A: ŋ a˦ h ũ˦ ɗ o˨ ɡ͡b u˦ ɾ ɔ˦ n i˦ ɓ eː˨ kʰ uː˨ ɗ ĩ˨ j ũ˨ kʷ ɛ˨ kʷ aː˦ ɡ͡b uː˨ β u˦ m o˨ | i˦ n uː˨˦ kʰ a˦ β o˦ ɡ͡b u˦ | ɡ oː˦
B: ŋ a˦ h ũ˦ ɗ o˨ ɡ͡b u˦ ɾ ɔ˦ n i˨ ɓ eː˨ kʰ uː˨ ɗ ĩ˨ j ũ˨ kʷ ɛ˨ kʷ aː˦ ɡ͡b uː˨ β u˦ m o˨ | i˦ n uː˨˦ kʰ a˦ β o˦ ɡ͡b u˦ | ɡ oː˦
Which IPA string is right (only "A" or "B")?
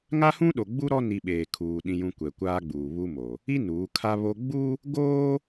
B